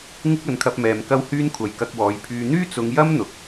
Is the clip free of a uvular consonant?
yes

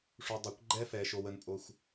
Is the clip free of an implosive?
yes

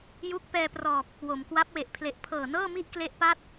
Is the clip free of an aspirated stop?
no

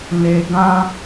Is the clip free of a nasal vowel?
no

